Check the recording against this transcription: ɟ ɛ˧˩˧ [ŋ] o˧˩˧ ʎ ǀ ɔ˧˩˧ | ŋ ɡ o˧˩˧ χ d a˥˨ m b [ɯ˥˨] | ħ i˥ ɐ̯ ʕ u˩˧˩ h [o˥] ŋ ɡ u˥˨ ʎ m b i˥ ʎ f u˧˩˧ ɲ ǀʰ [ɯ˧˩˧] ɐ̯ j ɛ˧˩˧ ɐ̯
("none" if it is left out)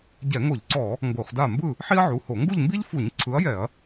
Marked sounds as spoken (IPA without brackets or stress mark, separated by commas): ŋ, ɯ˥˨, o˧˩˧, ɯ˨˥